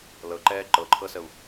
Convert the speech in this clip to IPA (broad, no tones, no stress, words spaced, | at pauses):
lɤǃɛː ǃɤǃʰɤsəu̯